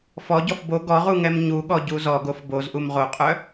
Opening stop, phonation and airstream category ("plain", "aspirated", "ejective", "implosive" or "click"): plain